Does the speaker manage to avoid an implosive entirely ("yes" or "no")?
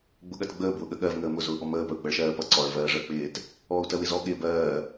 no